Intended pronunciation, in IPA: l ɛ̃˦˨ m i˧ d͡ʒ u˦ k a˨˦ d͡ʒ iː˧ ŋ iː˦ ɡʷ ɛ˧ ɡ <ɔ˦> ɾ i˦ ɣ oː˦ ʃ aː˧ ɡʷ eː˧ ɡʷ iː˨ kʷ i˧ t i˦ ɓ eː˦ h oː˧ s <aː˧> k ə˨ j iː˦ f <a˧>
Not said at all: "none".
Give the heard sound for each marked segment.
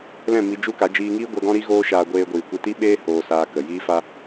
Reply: ɔ̃˦, aː˧, a˦

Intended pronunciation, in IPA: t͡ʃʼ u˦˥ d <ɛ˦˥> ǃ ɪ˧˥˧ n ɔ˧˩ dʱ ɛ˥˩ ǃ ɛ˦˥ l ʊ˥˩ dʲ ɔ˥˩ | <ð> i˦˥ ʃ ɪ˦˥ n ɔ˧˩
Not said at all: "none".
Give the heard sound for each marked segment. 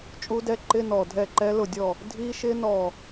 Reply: ɛ˦˥, dʱ

